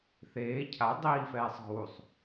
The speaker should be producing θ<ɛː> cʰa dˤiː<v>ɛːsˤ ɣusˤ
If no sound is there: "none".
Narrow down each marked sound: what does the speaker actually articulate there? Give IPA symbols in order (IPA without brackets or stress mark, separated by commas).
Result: eː, f